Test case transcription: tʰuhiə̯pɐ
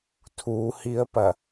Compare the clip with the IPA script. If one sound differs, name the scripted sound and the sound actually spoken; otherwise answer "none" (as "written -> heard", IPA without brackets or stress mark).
none